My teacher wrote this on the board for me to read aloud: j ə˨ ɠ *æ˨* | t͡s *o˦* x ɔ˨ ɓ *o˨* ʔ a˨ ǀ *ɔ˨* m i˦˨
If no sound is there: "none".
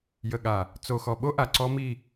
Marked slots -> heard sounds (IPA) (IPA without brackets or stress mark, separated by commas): a˨, o˨, o˦, ɔ˦